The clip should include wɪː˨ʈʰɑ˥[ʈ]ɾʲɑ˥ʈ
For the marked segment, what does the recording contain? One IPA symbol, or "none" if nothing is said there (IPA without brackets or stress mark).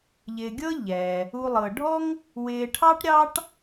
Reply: ʈ